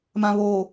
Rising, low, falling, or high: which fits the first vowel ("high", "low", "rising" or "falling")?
low